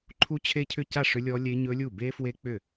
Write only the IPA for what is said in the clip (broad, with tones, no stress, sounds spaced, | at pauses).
ǃʰ u˦˥ t͡ɕʰ e˦˥ cʰ ʏ˥˩ c a˥˩ ʂ ʏ˦˥ lʲ ɔ˦˥ lʲ e˦˥ ɲ ɵ˦˥ lʲ u˥˩ b e˦˥ f w e˦˥ k͡p ʏ˥˩